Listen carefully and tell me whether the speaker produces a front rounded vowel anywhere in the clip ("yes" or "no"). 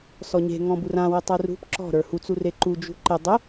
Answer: no